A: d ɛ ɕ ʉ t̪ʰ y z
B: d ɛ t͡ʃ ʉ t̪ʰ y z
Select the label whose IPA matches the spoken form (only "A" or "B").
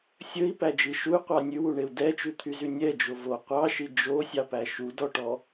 B